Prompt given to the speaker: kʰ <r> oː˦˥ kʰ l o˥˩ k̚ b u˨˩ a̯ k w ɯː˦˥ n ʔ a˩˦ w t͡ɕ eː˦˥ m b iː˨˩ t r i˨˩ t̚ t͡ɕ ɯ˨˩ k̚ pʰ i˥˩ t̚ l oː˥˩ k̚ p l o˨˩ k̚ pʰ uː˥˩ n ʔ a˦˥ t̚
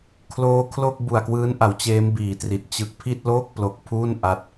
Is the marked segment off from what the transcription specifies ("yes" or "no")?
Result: yes